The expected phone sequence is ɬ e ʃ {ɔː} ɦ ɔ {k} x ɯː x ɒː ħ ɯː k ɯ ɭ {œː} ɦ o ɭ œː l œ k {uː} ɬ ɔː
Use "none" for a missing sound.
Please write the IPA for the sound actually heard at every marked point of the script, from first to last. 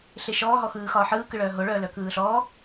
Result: ɔː, none, œː, ɯː

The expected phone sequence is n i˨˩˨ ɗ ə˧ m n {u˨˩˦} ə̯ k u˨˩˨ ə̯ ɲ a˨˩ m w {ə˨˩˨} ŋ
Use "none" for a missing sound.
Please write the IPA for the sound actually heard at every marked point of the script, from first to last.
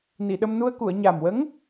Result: u˧, ə˧˥

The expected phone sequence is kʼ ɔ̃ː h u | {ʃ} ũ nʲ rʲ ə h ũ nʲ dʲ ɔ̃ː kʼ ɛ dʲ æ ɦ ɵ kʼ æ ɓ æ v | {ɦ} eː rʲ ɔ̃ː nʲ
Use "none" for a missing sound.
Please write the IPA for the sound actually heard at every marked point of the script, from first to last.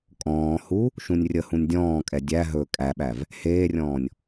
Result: ʃ, h

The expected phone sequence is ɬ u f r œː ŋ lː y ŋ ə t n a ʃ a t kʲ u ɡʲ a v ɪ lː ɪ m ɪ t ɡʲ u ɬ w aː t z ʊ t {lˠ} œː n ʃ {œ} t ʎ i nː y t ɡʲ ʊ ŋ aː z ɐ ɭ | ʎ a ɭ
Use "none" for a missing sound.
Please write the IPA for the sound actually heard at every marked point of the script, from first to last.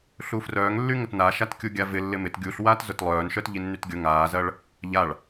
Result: lˠ, œ

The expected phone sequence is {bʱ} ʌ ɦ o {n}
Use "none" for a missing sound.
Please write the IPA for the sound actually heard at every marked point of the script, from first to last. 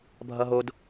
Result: bʱ, d

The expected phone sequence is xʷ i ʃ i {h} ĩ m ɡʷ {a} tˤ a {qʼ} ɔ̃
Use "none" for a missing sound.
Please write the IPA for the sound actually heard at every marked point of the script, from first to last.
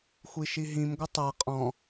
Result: ɦ, ə, qʼ

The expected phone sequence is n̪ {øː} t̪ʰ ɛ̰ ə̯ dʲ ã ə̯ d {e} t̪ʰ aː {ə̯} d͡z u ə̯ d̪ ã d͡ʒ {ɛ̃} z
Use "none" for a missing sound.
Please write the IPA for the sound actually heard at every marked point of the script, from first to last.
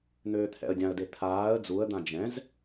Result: øː, e, ə̯, ɛ̃

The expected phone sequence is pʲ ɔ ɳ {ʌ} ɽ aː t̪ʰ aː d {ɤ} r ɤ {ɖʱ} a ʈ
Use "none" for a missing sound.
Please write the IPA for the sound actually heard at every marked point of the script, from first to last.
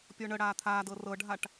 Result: ə, ɤ, ɖʱ

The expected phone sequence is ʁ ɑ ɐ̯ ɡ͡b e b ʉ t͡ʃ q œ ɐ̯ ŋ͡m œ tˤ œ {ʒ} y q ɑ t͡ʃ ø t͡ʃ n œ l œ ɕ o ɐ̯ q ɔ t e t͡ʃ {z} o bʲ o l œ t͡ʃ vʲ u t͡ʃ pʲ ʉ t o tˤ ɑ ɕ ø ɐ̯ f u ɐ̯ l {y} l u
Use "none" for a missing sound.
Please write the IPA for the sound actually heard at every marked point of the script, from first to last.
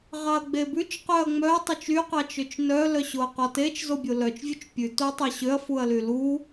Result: t͡ʃ, z, y

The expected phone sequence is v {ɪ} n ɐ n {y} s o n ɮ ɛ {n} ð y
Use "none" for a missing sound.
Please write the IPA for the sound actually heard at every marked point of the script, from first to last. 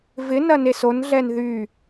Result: ɪ, e, n

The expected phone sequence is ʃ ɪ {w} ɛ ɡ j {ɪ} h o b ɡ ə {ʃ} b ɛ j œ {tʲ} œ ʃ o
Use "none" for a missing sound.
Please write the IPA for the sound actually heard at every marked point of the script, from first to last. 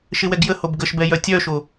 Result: w, ə, ʃ, tʲ

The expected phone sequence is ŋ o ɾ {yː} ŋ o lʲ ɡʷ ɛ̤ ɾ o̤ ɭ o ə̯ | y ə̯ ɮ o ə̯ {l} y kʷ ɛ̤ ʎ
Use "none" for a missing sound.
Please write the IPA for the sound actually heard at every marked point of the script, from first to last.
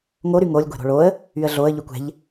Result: y, ʎ

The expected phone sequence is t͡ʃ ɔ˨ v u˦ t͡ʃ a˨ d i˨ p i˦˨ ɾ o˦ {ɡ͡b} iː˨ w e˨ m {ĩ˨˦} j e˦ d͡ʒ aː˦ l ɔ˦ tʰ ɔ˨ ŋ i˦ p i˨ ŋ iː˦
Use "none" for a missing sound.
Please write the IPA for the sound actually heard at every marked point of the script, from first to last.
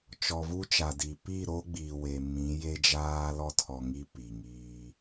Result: ɡ͡b, ĩ˨˦

